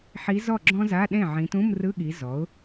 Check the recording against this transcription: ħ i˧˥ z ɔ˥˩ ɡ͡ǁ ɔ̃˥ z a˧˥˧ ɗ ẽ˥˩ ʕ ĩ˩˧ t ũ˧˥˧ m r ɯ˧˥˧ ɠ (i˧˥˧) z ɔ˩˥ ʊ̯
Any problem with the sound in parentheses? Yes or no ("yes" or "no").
yes